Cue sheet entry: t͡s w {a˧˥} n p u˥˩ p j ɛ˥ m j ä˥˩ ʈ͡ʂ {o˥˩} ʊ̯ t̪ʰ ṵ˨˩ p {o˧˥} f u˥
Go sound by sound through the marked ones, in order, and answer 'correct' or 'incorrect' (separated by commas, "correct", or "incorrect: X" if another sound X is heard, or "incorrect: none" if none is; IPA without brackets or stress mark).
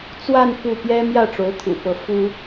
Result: incorrect: a˥˧, incorrect: o˧˥, incorrect: ɤ˧˥